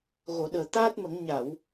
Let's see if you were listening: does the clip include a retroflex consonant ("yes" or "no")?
no